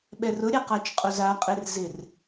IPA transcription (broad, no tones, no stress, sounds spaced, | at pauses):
ɓ ɛ r ʊ ɾʲ a q a t͡ʃ qʼ o z a qʼ e r z ɪ r